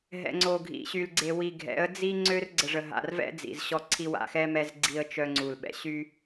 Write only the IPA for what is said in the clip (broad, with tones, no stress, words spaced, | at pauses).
ɦɛ̰˨ŋ͡ǀo˨ɡʱḭ˨ɕy˨l ɡ͡ǀe˨wi˨ ɡʱɛ̰˨˦ə̯ d͡zi˦ ŋ͡ǀø˦r ɡ͡ǀə˨ʐə˨ɦa̰˨rvɛ̰˦ d͡zḭ˨z ɕɔ˦ǀʰi˦ wa̰˨xɛ˦ mɛ˦z ɡ͡ǀi˦ə̯t͡ʃœ˦ŋ͡ǀu˨l ɓɛ̰˨ɕy˦